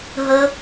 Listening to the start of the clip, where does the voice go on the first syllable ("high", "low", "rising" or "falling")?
high